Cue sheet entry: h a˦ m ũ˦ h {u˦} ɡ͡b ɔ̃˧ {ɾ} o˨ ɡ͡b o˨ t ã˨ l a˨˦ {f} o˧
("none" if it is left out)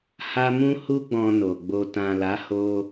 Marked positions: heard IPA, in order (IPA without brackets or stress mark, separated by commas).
u˦, n, h